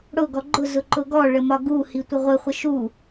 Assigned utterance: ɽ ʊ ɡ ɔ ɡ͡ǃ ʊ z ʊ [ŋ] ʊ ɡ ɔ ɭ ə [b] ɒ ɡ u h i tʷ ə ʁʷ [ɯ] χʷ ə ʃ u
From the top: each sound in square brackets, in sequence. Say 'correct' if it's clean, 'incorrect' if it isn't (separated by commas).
incorrect, incorrect, incorrect